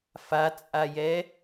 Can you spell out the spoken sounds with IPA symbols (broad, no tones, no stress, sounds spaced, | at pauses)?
f a t͡sʼ a j ɛ